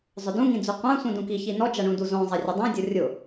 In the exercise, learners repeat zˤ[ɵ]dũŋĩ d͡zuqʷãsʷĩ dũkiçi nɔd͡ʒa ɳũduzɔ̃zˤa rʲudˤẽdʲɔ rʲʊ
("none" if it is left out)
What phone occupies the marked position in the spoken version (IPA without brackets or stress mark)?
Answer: ʊ